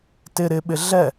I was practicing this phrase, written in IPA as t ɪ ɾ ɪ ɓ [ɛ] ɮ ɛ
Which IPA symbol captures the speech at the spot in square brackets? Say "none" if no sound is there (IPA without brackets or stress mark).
ɪ